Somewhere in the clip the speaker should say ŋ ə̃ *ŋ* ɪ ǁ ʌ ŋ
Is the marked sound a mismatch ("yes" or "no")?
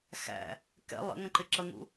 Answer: yes